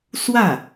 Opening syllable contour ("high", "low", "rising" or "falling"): falling